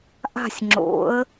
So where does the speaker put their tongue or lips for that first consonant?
throat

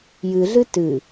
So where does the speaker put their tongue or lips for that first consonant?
palate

